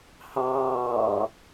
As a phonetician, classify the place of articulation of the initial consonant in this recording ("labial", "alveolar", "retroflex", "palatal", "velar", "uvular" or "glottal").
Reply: glottal